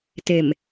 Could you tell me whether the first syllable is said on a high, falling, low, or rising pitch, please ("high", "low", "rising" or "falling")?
low